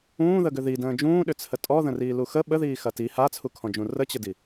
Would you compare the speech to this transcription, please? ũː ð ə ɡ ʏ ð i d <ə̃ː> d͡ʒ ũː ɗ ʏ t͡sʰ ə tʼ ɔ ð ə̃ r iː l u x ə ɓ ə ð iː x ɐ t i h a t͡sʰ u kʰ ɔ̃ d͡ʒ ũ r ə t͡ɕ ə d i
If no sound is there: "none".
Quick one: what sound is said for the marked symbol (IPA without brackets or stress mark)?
ə̃ː